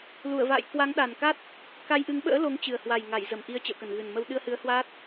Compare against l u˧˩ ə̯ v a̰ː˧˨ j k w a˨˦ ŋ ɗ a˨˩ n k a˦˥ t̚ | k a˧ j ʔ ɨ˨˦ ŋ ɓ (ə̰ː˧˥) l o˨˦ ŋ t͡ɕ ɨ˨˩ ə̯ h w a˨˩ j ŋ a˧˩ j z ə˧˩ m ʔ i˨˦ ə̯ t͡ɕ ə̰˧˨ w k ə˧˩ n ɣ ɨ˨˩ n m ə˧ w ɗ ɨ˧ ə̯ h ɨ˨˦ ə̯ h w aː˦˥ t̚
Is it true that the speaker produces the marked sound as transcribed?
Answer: yes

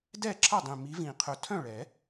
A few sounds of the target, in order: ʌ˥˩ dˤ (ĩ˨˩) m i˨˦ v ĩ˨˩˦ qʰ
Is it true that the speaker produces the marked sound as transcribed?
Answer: yes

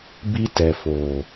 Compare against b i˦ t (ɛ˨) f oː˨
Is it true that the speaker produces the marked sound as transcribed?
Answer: yes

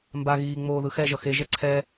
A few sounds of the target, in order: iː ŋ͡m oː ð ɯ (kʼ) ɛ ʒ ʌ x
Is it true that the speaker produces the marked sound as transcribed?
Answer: no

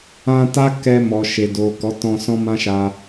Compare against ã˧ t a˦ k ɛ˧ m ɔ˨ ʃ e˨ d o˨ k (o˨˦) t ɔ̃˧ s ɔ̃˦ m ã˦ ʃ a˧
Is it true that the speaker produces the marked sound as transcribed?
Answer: no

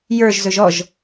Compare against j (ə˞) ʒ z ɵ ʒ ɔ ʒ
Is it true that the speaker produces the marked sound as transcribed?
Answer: yes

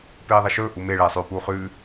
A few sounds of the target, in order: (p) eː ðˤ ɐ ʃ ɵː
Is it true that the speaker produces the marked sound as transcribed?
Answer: yes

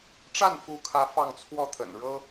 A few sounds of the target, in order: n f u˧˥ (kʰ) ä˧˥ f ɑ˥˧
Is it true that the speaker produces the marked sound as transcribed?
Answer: yes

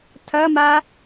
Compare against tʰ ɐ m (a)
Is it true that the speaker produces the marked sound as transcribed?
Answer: yes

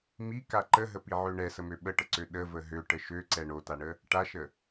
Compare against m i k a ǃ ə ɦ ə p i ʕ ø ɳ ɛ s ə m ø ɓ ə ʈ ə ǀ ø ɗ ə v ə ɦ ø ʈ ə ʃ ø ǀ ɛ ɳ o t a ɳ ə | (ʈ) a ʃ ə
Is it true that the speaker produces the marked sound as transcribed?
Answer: yes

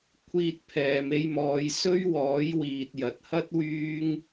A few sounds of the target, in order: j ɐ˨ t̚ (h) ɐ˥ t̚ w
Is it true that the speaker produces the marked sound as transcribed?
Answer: yes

